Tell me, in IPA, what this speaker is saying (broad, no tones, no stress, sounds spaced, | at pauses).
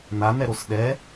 n̪ a n̪ ɛ ɾ o s ɗ ɛ